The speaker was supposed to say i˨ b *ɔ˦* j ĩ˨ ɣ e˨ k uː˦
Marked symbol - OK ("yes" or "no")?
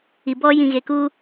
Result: yes